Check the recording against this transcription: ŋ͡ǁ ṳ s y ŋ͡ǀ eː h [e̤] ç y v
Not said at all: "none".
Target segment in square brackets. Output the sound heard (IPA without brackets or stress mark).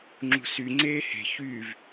e̤